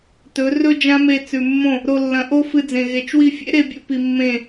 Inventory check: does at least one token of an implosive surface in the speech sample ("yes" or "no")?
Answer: no